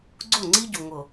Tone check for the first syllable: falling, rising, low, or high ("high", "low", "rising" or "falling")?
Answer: falling